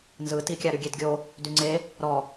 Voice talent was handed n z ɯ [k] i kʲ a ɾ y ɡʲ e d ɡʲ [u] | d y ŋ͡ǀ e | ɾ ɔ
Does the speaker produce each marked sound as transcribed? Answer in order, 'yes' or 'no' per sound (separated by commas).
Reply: no, no